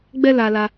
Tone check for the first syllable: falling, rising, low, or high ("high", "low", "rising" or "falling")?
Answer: high